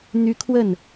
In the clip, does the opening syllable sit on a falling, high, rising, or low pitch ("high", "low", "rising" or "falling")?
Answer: high